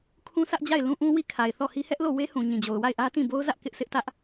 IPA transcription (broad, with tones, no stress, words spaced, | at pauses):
kʰũ˦sä˦ʔd͡ʑa˦˨ɪ̯ lũ˦ʔũ˦wi˦˨ kʰa˨ɪ̯θɔ˦˨hi˦ hɛ˦ʔlo˦˨we˦ hũ˨ ɲĩ˨d͡ʑo˨ʊ̯ wa˦˨ɪ̯ʔä˦tĩ˦˨ bo˦ʊ̯zä˦ʔ kɪ˦ʔ sɪ˦ʔtä˦ʔ